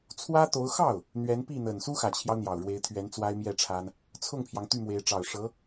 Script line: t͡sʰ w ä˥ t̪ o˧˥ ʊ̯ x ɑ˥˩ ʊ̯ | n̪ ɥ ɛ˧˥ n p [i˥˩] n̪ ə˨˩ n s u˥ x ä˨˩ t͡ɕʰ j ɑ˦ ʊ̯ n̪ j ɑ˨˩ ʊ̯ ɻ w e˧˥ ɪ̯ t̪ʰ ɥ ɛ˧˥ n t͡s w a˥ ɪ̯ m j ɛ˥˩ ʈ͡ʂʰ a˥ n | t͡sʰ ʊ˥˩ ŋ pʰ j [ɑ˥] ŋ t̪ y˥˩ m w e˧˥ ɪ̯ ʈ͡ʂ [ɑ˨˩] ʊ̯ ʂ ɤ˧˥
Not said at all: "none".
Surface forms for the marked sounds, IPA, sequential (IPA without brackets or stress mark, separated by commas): i˥˩, ɑ˩, ɑ˨˩